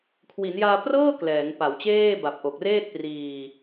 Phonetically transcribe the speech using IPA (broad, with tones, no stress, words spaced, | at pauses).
kʰwi˩˦njaː˧ prɤː˥˩ klɛː˩˦ŋpa˩˦wt͡ɕeː˥˩ ba˨˩p̚ʔo˨˩k̚ reː˥˩t̚priː˧